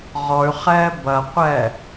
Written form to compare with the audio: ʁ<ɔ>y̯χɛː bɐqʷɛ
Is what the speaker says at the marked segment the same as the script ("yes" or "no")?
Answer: yes